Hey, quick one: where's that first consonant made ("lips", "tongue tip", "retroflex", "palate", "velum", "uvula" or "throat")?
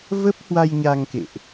lips